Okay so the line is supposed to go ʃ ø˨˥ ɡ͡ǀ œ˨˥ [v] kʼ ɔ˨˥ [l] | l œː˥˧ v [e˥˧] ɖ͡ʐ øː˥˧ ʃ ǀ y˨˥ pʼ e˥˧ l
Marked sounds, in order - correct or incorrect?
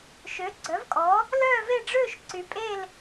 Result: correct, incorrect, correct

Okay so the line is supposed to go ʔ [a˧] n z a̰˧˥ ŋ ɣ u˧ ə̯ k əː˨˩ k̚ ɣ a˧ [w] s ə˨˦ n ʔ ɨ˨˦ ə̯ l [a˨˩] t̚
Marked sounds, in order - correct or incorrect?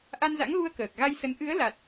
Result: correct, incorrect, correct

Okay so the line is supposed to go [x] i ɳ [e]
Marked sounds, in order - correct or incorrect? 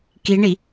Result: incorrect, incorrect

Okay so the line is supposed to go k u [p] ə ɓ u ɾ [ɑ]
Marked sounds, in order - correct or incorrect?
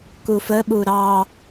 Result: incorrect, correct

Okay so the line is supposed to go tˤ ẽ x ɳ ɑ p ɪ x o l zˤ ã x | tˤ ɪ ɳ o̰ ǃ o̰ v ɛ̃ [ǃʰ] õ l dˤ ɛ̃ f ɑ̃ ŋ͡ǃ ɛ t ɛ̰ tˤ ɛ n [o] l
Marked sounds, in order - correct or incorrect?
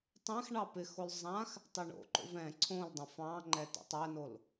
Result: incorrect, correct

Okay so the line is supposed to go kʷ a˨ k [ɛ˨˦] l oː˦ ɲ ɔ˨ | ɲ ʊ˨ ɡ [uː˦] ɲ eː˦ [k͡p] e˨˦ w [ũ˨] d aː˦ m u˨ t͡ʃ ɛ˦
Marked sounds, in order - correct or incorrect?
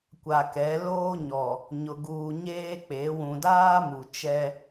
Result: correct, incorrect, correct, correct

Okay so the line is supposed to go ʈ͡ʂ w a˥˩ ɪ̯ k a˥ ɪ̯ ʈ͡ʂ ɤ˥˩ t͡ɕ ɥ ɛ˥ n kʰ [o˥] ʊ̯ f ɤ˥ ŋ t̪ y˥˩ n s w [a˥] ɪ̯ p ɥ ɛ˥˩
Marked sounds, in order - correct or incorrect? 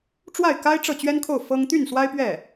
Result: incorrect, correct

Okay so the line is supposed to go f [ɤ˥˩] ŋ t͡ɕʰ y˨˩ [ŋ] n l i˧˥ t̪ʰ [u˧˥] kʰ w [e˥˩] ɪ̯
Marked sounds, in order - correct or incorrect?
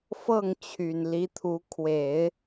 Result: correct, incorrect, correct, incorrect

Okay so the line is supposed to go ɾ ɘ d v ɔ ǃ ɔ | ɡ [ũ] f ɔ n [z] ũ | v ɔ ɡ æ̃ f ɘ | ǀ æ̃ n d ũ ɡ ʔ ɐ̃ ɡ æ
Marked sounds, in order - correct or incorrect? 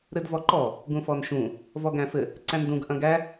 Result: correct, incorrect

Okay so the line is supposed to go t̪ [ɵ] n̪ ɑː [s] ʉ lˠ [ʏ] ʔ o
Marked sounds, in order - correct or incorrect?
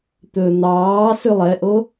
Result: correct, correct, incorrect

